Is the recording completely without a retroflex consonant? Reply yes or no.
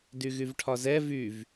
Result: no